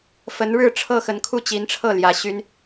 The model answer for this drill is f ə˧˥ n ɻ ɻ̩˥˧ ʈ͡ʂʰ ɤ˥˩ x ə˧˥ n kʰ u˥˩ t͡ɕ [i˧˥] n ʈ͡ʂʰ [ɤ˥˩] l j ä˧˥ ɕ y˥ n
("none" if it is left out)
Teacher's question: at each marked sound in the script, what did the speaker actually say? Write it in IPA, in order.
i˧˥, ɤ˥˩

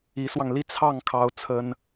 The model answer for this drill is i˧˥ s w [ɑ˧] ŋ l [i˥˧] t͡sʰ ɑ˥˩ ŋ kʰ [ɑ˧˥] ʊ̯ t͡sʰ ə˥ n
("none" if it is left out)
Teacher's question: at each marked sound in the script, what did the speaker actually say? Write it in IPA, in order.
ɑ˧, i˥˧, ɑ˥

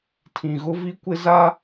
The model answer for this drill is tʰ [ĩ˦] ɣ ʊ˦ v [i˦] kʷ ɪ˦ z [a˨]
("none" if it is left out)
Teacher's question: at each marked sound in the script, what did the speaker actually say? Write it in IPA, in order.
ĩ˨, i˦, a˦

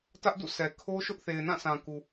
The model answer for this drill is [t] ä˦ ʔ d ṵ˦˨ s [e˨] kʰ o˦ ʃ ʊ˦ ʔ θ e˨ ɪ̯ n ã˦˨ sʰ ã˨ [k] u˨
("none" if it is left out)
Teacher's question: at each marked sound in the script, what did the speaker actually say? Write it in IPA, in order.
t, ɛ˨, k

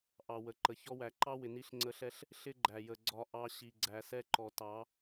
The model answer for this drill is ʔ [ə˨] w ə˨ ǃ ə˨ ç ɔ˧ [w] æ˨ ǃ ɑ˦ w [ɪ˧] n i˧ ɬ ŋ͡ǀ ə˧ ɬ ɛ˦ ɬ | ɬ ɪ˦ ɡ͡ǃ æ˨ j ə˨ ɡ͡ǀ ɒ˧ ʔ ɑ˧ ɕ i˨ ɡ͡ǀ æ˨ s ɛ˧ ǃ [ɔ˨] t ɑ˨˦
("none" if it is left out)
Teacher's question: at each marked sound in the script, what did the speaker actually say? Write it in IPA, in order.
ɑ˨, w, ɪ˨, ɔ˨

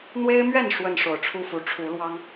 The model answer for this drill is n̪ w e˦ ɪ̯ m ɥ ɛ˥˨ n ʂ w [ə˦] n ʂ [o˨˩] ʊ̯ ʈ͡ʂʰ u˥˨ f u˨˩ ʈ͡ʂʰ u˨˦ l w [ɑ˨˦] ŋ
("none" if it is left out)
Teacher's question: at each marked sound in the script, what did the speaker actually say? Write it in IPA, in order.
ə˥˨, o˨˩, ɑ˦

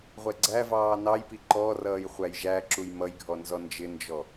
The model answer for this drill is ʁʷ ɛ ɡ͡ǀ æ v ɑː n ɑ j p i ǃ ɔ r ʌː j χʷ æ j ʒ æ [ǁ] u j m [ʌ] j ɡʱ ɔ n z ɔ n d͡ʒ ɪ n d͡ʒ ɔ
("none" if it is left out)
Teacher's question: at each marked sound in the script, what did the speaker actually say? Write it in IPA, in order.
ǁ, ʌ

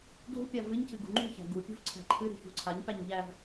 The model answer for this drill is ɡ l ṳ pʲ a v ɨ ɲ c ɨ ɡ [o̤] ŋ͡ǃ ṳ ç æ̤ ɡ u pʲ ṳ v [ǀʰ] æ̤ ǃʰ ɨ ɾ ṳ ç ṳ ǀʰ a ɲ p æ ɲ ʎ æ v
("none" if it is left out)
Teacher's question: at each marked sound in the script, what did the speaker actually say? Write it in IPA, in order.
ṳ, ǀʰ

